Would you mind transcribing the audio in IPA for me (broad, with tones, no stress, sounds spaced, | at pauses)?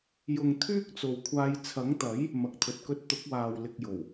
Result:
j ʊ˨ ŋ t̪ʰ yː˥ k̚ t͡s o˨ w kʷʰ aː˧ j t͡sʰ ɐ˨˥ ŋ t̪ ɐ˨˥ j | m ɐ˨ k̚ t̪ʰ ɵ˨ t̚ k ɵ˥ t̚ t̪ ʊ˨˥ k̚ w aː˨ w l ɪ˧ k̚ j o˨˩ w